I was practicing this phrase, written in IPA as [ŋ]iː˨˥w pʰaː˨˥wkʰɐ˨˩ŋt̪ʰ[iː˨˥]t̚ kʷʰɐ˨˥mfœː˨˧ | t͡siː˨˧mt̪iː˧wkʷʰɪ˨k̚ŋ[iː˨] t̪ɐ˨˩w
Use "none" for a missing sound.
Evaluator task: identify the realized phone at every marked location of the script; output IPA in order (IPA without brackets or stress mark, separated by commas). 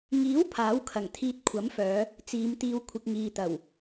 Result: ŋ, iː˧, iː˨